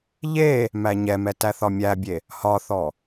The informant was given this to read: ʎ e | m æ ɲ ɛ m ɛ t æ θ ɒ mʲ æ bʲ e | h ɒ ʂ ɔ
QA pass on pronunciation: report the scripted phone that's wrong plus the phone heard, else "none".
ʂ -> θ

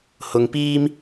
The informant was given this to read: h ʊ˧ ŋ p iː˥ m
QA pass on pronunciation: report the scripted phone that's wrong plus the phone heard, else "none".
none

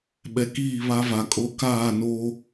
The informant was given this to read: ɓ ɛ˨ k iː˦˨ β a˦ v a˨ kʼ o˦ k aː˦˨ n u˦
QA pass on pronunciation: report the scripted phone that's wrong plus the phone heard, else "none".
u˦ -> o˦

